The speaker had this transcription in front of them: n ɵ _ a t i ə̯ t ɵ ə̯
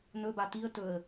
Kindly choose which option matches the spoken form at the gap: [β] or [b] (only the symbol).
b